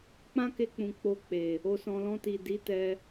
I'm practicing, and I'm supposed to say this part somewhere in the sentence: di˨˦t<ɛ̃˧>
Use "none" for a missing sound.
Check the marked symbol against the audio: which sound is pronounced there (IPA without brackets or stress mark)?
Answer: ɛ˧